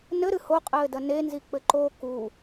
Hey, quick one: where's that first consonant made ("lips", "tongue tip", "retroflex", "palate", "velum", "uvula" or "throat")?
tongue tip